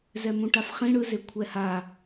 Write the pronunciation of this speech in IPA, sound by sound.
zɛmũʈafχĩ ɽɯze kʷʰɛha

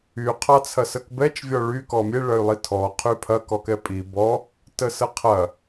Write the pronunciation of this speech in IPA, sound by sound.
y qʰɑt͡sʰɐsəkbɛt͡ʃ vʲɔɭy kɔmʲe ɭɐy̯lˠitʰɔ qʰypʰɐ kɔkɛpʼi bɔ | təsəqʰɐ

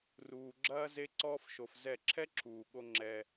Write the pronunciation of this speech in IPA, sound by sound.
ruː˧ɡ͡ǁɐː˦ ze˦ǀɔː˦fʃo˧fzɛ˦˨ ǁʰɛ˦ǁʰuː˨ɠo˧ ŋ͡ǁɛ˧

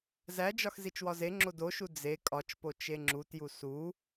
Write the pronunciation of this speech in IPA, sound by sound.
zæd͡ʒɒx zit͡ʃwɒzeŋ͡ǁo doʃu d͡ze kʼɒt͡ʃpo t͡ʃeŋ͡ǁutju su

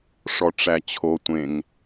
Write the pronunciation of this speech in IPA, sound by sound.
ʂɔʈ͡ʂæt͡ɕʰo tʷẽŋ

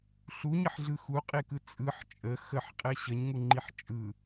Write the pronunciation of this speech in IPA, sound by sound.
ɬuɲəħɮɯ xuqʼekɯ t͡sʼɯħ t͡ʃʼə xəħqʼɛ ɕəɲŋuŋ͡ǃiħ t͡ʃʼɯ

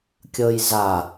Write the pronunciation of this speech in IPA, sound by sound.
kʲɤjza

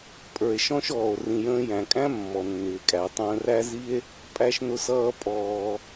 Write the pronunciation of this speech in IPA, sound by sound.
pʼə˞˩e̯ʃɔ̃˥ʃɔː˩o̯ rĩ˩jə̃ː˧jæ̃˩kʼæ̃˥ mːɔ˩nːɪː˩kʼæ˩ tˤə̃ː˧ræ˥zi˥e̯ | pʼæ˧ʃnʊ˧sʌː˧ pʼɔː˩

